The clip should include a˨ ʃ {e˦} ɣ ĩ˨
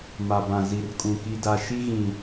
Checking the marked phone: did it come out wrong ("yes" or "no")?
yes